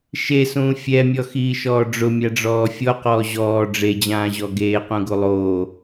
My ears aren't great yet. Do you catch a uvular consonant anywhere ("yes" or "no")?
yes